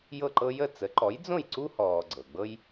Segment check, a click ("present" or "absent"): present